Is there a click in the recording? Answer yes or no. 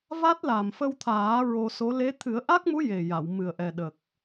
no